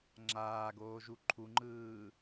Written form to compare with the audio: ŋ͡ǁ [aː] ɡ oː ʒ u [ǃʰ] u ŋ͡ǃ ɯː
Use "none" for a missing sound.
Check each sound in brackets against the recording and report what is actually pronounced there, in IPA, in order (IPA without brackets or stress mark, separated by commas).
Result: aː, ǃʰ